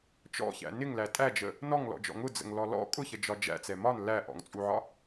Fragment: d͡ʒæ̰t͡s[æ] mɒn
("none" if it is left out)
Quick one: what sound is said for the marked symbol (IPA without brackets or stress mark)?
ɛ